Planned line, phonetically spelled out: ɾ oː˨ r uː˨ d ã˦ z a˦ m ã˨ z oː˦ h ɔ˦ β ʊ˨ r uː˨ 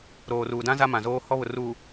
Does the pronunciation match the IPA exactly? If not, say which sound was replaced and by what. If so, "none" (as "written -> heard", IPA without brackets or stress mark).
none